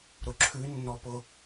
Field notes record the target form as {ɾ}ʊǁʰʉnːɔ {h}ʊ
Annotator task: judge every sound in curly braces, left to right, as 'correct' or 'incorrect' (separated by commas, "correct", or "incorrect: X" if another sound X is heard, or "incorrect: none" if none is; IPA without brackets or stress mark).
correct, incorrect: p